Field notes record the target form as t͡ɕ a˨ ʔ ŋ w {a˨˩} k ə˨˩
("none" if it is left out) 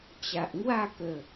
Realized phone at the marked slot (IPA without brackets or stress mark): a˥˧